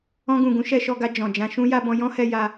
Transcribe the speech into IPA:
ɔ̃˧ɡũ˨ɡũ˨˦ ʃɛ˧ʃɔ˧ɡa˧ d͡ʒɔ̃˨d͡ʒã˧ ʃũ˦ ja˧ bɔ̃˧jɔ̃˦hɛ˧ ja˧

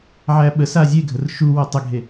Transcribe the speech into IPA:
ʕæɓəsa zʲeɡʱər ʃuwo tˤəɡʱe

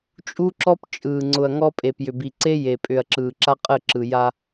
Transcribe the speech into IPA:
t͡ʃʼu˦ǁɔ˦pt͡ʃʼɯː˨ ŋ͡ǀʊ˨ɐ̯ŋɔ˦ pʼe˨pjʏ˨bi˨ ǀe˦je˨pʼʏ˨ɐ̯ ǁɯː˨ǁa˦qʼə˦˨ǁɯ˨ ja˦

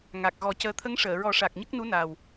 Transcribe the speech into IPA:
ŋa˨˩k̚ɣɔ˨˩˦cəː˧ t̪ʰə˧˥ŋʂəː˨˩˨ɹɔ˨˩˦ʂa˨˩k̚ ɲə˦˥k̚nu˧˥ na˨˩w

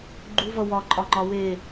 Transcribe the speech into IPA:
ɡ͡ǃuvʌ wɒ ǃʼɒŋ͡ǃɒwe

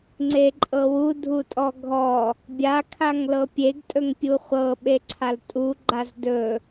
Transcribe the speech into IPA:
ŋ͡ǀeǃʼɤwu dʱutʼɔɡʱɔ | bʲa kʰaŋlɤpʲeɡ tʼɵŋpʲuχʷɤ ɓeǀʰaltʼu ɡ͡ǃazdɵ

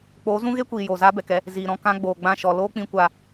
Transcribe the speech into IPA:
k͡poː˨˦zũ˦ɣe˦kʷiː˨ joː˨zaː˦bɛ˨kɛ˧ | ziː˨ɾɔ̃˧ kã˧ ɡ͡boː˨ɡ͡bã˦˨ʃɔ˨ loː˦k͡pĩ˧kʷa˧

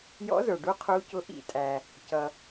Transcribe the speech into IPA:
jɔ̰˧˥zə˞˩ɖu˧˥ qʰu˧˥cʊ˧˥ ʔḭ˦˨tʼæ˩ | cʌ˩

